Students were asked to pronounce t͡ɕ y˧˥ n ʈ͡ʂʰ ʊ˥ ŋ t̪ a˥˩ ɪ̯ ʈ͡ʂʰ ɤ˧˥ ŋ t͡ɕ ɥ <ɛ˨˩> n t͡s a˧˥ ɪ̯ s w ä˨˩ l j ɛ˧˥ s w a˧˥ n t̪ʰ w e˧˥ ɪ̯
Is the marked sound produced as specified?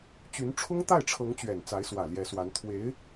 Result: yes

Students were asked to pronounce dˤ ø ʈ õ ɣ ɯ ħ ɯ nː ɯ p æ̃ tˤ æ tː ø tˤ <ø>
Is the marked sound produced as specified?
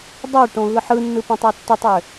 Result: yes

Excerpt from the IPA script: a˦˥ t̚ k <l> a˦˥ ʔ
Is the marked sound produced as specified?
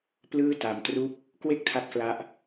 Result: yes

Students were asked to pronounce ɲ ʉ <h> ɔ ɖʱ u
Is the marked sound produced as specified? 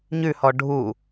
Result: yes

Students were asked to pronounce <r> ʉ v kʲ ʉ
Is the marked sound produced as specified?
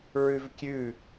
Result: no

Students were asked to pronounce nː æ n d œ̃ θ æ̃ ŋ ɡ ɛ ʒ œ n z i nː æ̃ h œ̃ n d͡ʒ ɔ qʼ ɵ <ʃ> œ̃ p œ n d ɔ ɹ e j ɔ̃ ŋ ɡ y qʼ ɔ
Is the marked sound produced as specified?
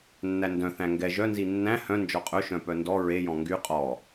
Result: yes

